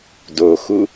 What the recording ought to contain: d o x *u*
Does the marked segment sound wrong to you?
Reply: no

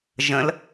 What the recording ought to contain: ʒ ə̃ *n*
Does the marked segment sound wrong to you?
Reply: yes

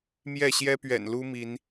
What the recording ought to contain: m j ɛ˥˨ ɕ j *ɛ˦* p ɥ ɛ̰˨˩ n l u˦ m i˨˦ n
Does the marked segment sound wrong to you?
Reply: no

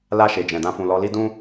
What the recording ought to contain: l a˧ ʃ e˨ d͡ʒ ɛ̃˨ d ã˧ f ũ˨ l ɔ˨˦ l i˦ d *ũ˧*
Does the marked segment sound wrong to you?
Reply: yes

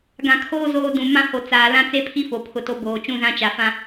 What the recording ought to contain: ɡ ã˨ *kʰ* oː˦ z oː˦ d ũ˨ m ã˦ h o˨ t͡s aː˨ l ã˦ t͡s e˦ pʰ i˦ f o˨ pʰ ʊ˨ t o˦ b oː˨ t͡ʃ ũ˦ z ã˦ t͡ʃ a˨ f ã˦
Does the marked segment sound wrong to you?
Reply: no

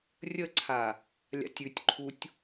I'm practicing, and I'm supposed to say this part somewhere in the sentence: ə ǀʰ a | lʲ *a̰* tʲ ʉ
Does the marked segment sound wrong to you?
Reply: no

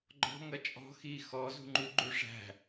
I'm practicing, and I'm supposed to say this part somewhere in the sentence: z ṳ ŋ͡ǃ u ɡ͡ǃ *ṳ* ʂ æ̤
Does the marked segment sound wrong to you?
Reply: yes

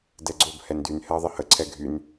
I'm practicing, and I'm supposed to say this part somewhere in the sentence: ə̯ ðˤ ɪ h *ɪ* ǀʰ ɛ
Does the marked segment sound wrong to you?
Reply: yes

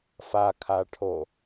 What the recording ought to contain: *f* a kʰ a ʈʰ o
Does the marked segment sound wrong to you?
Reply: no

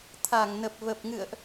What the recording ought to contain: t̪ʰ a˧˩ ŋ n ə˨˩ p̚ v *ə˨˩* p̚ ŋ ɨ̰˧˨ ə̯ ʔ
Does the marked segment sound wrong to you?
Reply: no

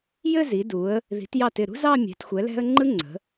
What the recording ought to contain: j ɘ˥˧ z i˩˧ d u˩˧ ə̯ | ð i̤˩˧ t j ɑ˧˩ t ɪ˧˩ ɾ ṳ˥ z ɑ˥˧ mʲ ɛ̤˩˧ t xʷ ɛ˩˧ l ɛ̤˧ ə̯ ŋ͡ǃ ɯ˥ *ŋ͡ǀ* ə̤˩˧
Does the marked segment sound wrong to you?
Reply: no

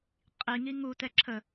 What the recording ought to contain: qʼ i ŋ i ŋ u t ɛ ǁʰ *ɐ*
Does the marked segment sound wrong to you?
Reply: yes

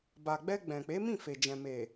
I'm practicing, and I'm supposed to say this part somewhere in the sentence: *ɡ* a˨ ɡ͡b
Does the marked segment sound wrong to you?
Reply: yes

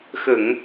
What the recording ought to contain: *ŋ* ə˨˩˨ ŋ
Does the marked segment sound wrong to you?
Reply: yes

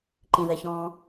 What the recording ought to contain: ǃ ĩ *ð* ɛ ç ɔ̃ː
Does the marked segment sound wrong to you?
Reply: no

